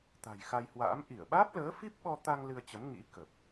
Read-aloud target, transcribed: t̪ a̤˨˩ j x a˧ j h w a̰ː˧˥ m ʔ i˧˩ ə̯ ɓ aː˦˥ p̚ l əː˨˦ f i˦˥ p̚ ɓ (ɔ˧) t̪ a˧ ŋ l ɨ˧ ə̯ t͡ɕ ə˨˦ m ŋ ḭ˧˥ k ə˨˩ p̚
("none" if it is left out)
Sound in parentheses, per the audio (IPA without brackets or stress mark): ɔ˧